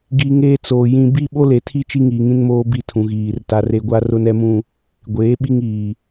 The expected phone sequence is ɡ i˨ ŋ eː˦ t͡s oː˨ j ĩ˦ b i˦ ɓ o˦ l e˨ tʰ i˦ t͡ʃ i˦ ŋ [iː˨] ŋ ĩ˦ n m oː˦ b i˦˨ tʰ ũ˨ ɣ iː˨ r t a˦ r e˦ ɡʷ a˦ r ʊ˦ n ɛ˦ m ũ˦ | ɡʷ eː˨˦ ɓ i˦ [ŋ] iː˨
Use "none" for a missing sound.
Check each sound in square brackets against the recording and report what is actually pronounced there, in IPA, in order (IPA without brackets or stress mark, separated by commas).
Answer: iː˨, ŋ